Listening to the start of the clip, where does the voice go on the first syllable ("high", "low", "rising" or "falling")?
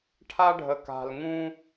high